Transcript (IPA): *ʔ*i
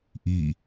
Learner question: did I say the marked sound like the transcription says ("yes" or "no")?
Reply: yes